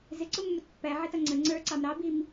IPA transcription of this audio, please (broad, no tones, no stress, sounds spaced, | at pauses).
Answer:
z ɪ ǀ ʊ mː ʊ t pː æ ʕ ɛ t ʌ ŋ͡ǀ ə ŋ͡ǀ ə˞ ǀ ɑ m ɾ ɑ b i m